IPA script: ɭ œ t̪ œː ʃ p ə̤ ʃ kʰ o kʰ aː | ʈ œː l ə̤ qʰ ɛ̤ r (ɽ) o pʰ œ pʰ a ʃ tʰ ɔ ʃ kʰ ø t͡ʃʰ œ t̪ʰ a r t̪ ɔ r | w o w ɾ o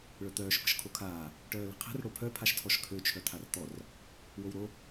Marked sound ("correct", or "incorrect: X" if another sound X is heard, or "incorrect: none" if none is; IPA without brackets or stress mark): correct